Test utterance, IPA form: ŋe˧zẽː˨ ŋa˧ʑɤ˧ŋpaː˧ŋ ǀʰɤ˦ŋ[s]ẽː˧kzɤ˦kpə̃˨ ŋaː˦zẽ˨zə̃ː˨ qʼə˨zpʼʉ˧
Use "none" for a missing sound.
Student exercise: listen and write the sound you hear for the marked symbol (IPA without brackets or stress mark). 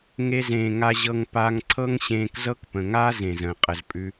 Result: ɕ